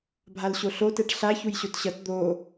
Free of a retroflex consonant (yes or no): no